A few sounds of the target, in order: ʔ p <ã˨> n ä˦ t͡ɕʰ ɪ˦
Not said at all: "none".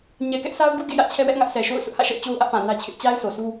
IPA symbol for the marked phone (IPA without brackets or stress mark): ã˨